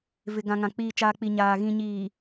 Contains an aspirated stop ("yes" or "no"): no